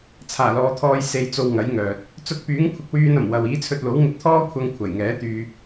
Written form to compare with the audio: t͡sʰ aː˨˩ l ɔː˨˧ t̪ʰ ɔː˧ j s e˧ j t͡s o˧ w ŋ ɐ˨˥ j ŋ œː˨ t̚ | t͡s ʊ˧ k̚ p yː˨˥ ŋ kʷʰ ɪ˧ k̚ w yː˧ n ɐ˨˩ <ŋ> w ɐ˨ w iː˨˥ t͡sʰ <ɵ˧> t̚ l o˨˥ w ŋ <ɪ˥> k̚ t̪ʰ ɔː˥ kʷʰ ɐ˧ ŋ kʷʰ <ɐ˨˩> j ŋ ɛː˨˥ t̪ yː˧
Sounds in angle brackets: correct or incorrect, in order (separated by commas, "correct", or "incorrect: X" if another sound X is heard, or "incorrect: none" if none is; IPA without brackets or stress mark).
incorrect: m, correct, incorrect: ɪ˧, correct